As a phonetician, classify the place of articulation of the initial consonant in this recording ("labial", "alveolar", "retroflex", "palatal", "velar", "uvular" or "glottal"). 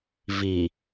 labial